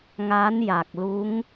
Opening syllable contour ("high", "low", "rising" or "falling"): rising